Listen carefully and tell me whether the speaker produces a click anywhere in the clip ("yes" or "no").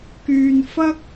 no